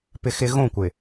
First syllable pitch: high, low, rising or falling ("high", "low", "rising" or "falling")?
high